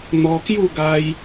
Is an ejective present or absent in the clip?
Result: absent